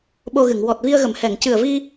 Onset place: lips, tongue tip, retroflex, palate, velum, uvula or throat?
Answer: lips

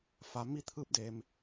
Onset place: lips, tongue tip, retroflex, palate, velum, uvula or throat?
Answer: lips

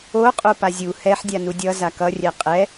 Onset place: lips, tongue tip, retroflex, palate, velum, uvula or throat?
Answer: uvula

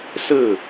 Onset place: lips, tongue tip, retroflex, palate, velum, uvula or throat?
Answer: tongue tip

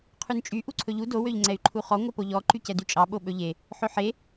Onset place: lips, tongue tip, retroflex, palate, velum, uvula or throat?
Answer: uvula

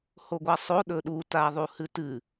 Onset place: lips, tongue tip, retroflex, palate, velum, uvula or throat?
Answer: throat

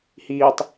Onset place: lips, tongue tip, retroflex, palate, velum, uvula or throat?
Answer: throat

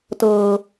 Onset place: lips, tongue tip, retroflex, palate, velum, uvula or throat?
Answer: tongue tip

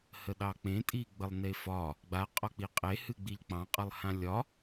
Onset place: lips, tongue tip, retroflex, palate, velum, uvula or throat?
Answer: throat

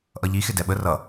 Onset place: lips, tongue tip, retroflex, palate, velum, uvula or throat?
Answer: throat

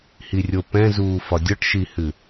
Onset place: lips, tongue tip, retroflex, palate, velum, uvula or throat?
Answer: throat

